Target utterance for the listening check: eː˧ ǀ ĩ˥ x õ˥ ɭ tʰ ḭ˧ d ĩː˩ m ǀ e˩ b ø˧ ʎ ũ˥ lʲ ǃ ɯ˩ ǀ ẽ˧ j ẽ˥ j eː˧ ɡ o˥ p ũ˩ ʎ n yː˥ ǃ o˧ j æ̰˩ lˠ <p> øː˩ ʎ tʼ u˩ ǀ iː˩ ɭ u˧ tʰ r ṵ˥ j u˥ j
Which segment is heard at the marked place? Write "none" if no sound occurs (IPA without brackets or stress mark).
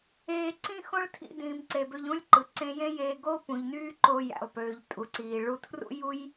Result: p